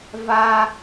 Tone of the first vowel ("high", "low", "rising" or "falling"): high